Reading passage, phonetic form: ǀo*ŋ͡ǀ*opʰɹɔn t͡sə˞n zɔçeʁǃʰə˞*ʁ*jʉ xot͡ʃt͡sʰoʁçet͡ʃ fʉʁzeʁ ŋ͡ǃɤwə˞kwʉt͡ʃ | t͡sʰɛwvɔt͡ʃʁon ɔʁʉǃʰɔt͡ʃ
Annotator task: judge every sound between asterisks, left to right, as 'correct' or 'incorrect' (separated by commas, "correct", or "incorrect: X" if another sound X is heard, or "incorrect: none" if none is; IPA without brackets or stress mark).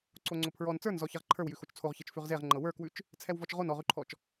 correct, incorrect: w